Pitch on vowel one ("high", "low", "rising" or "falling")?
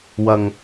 high